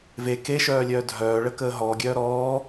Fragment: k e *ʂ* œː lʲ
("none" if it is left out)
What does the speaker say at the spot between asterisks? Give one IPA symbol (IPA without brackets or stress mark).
ʃ